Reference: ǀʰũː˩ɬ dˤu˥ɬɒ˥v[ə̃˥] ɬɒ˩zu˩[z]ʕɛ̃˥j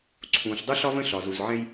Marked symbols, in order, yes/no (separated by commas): yes, yes